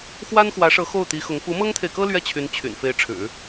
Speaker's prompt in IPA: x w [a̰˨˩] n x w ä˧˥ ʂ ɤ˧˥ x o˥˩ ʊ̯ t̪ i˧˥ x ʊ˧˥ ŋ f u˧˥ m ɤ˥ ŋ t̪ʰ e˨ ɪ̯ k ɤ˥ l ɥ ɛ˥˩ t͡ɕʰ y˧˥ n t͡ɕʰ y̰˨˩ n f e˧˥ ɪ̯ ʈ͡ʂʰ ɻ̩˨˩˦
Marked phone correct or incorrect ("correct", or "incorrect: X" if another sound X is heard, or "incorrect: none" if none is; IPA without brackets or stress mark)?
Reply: incorrect: a˥